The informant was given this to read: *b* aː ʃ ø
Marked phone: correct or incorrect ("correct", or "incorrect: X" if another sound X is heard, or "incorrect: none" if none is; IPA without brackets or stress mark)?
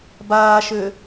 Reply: correct